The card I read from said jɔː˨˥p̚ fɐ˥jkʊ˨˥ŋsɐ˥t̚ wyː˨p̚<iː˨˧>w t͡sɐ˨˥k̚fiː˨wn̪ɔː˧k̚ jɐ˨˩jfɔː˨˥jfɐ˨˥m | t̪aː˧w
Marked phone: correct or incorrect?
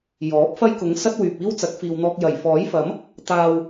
incorrect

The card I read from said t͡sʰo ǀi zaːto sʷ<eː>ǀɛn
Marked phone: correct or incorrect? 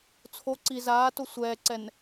incorrect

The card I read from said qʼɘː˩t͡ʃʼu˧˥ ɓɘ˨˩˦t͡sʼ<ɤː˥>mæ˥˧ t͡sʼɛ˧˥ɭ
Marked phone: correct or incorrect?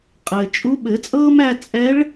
correct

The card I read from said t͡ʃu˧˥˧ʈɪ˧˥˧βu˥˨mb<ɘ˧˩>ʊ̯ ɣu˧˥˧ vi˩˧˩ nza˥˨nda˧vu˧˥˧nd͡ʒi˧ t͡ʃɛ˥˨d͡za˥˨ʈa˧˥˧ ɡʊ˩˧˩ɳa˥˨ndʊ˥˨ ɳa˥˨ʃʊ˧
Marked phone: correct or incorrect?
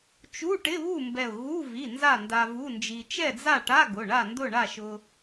incorrect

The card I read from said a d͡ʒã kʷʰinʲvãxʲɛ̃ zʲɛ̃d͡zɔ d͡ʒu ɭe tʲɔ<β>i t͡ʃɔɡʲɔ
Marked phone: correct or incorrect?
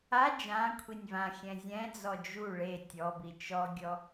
incorrect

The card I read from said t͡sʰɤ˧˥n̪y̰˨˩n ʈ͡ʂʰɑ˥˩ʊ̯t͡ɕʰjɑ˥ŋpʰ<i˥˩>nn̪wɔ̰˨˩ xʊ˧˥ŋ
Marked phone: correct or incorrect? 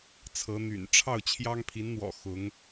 incorrect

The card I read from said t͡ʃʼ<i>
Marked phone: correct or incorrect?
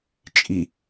correct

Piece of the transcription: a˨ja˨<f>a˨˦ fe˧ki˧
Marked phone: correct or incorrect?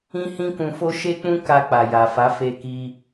correct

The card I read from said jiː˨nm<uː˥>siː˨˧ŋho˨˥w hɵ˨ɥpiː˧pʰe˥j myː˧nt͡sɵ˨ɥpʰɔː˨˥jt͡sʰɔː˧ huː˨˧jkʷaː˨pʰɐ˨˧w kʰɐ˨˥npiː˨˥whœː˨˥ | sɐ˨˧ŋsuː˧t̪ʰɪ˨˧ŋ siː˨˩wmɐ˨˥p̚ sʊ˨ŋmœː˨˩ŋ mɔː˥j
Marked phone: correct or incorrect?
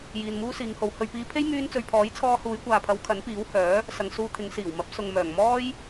correct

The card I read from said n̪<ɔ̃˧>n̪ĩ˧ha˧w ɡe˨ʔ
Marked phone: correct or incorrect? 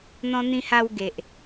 correct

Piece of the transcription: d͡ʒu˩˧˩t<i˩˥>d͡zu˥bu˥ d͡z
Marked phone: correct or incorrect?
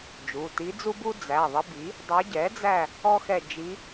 incorrect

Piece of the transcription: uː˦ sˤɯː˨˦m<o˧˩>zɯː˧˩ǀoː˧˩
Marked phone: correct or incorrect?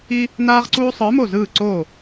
correct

